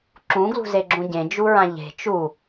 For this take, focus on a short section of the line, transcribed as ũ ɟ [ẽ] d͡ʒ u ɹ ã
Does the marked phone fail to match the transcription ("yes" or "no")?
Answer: no